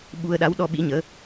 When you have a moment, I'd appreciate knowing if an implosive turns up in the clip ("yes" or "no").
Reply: yes